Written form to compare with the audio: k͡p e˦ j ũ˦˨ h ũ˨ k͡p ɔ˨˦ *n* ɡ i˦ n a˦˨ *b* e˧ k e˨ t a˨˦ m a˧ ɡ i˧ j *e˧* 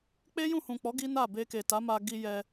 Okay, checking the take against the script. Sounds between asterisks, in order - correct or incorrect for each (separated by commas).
incorrect, correct, incorrect